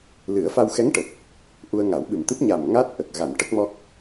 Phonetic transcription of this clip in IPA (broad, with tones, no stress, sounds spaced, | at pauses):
l ɨ˨˩˦ ə̯ f a˧ w x ɛ˧˥ ŋ ʈ ə˨˩ k̚ | ʔ u˧ ə̯ ŋ a˨˩˦ w ɓ ɨ˨˩ m t̪ ɨ˦˥ p̚ ɲ a˨˩ m ŋ a˦˥ t̚ ʔ ə˨˩ k̚ ɣ a˨˩˨ n ʈ ə˦˥ k̚ m ɔ˦˥ k̚